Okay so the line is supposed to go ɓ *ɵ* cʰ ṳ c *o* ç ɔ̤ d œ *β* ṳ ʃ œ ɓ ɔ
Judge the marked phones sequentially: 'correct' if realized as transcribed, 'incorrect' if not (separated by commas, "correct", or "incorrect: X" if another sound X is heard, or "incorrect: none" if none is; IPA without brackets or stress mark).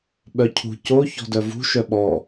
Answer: incorrect: œ, correct, incorrect: v